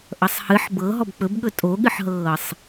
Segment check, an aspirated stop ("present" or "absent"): absent